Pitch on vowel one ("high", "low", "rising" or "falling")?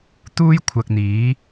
high